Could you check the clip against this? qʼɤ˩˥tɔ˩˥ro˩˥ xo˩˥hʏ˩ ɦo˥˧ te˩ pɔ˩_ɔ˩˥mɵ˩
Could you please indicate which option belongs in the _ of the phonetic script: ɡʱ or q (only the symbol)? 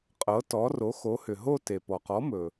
q